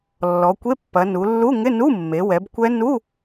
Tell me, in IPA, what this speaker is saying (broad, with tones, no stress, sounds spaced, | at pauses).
lː ɔ˩˧ kʷ e˧˥˧ pː ɐ˩˧ n u˩˧ lː u˧˥˧ ŋ ɪ˧˥˧ n u˧˥˧ mː e˩˧ w ɛ˩˧ b kʷ ɛ˦˥ n u˧˥˧